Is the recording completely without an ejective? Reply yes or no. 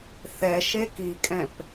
no